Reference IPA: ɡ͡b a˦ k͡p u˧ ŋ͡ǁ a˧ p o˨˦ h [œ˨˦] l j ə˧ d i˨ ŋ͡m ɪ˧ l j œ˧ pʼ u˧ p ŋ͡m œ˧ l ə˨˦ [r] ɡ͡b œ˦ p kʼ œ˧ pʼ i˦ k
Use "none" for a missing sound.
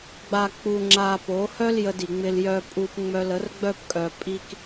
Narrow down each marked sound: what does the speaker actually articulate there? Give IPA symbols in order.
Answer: œ˦, r

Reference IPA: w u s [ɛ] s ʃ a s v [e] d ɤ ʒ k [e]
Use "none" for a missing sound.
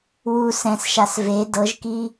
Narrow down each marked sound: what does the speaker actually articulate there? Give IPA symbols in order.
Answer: ɛ̃, e, i

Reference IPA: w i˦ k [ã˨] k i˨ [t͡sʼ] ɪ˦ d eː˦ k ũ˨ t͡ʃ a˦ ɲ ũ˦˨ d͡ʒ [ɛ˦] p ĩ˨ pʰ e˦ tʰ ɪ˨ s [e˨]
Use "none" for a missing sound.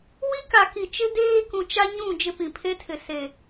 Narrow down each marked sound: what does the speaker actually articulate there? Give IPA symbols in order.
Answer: a˨, t͡ʃ, ɪ˦, e˨

